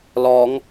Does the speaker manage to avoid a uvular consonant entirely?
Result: yes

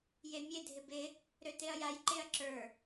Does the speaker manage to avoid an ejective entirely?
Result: yes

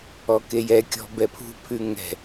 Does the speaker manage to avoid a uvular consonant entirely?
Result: yes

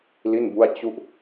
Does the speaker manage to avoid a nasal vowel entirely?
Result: yes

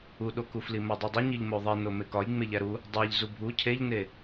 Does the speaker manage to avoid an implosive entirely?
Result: no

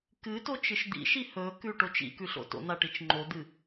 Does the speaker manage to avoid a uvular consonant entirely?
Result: yes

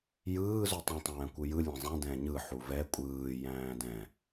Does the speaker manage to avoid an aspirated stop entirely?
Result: yes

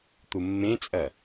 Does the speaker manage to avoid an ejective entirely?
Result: no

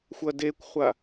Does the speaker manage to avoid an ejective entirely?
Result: yes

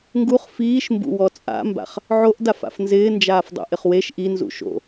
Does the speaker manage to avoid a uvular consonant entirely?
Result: no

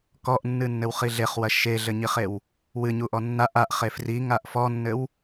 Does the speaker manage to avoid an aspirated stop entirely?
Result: yes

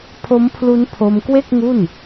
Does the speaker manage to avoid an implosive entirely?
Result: yes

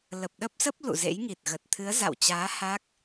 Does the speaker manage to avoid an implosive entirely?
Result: no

